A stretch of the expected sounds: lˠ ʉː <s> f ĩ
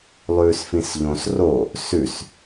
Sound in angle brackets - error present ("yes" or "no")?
no